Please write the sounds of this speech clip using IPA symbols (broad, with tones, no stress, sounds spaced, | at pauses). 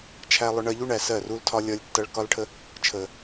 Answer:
t͡ʃʰ æ˧ lˠ ʊ˧ ɳ ɜ˧ ʎ u˦ ɳ æ˨ s ɜ˦˨ r u˦ l tʰ ɒ˦ lʲ ʌ˦ lʲ tː ʌ˦ ɭ k ɒ˦ l ʈʰ ə˦ | t͡ʃʰ ə˨